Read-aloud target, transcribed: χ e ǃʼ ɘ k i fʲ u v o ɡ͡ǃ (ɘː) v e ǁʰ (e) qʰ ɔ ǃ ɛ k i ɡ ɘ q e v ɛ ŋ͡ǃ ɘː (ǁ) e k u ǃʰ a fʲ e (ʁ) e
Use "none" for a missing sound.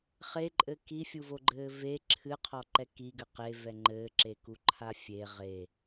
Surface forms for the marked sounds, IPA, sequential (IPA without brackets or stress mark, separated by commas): ɘː, ɨ, ǁ, ʁ